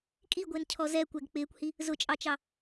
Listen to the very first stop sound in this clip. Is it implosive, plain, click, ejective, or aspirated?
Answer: ejective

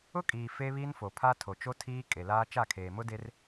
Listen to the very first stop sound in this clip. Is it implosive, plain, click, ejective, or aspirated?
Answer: ejective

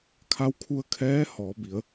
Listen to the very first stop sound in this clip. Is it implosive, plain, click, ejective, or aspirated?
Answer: aspirated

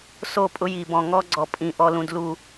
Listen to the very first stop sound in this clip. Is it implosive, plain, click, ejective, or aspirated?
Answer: ejective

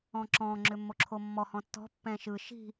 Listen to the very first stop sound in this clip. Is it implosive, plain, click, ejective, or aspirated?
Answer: click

